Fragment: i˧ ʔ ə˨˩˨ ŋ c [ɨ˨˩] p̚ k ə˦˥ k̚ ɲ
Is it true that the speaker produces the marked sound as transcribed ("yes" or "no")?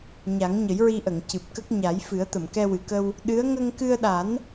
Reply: yes